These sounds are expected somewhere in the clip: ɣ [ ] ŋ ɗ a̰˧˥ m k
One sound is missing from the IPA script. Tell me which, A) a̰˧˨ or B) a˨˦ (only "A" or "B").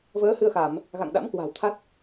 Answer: A